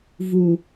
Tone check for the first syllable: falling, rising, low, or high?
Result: low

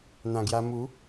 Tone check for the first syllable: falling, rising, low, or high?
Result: low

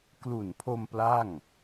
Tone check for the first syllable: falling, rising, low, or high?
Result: low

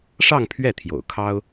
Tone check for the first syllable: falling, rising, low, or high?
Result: falling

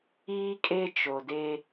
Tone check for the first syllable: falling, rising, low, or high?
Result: high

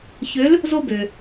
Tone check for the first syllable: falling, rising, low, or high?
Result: rising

